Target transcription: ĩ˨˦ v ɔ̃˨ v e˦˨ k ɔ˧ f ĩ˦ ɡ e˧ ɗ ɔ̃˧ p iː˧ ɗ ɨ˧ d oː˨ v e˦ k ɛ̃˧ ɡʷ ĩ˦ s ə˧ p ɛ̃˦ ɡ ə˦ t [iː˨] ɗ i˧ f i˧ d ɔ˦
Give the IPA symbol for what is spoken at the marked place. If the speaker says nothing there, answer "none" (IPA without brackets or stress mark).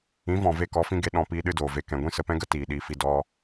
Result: iː˨